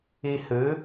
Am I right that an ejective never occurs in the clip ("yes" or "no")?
yes